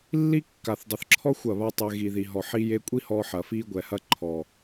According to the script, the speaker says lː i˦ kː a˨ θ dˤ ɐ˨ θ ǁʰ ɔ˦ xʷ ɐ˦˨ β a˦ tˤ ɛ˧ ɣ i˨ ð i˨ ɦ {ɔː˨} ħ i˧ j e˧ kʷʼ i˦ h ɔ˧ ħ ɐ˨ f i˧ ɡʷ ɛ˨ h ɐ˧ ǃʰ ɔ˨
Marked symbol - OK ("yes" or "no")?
no